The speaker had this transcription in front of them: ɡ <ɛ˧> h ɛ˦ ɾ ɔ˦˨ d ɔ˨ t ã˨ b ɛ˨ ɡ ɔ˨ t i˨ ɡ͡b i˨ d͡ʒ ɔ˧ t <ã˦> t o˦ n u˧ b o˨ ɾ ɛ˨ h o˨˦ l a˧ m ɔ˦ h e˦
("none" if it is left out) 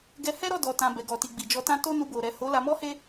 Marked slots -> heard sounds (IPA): ɛ˧, ã˦

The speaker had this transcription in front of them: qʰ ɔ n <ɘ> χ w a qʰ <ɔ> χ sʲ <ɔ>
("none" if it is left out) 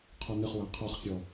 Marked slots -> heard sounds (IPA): ɘ, ɔ, ɔ

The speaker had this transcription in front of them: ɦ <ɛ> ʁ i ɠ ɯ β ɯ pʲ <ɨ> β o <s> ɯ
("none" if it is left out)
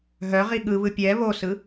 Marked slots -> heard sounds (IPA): œ, ɛ, s

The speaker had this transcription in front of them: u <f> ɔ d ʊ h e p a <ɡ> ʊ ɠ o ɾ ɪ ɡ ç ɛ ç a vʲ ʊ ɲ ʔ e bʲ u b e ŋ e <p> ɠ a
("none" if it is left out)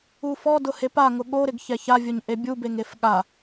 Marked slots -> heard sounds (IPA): f, ŋ, f

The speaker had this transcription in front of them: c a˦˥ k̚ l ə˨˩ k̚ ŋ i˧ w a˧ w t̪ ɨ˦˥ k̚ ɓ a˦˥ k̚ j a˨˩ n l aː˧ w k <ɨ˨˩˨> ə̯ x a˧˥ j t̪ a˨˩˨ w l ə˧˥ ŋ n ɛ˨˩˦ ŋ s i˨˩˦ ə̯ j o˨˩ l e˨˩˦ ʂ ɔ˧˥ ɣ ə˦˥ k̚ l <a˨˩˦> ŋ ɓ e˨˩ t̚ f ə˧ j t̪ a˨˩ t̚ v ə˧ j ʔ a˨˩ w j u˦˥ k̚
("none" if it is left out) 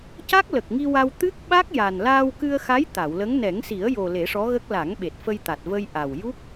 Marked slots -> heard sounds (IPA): ɨ˧, a˨˩˦

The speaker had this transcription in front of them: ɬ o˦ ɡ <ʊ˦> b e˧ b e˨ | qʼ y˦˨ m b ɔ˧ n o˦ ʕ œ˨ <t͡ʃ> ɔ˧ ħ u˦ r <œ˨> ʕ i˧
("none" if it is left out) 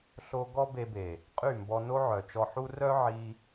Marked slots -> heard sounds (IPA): ɔ˦, t͡ʃ, œ˦

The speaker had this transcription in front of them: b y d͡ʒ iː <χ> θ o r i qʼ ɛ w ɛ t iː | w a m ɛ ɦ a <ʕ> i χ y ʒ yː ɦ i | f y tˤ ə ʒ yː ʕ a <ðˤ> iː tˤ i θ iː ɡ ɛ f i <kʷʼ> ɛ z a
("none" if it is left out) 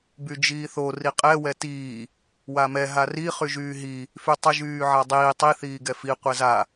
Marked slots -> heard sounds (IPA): none, r, dˤ, qʷ

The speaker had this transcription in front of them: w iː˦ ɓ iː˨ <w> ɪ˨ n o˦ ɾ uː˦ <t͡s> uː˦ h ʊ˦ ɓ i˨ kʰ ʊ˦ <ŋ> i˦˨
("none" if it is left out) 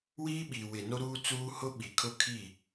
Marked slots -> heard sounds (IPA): w, t͡s, kʰ

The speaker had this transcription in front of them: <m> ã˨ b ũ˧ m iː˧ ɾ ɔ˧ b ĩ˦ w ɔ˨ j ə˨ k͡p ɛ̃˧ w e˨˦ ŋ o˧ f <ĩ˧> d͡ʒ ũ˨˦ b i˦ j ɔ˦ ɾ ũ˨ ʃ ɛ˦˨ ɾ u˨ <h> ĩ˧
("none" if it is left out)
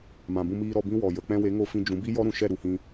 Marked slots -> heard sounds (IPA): m, ĩ˧, h

